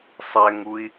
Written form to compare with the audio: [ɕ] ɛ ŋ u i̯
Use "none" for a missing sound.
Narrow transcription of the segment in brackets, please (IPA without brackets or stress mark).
sˤ